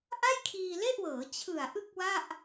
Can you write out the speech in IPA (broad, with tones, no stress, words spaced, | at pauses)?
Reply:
ʔa˥˩jkʰiː˧le˥˩ʔwɤː˩˦ t͡ɕʰɯ˨˩a̯ʔɯ˥˩k̚wa˥˩ʔ